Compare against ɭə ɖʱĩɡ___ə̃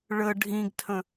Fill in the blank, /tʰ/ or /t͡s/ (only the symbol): tʰ